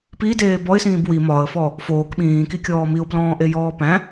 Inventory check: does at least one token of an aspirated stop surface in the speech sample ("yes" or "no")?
no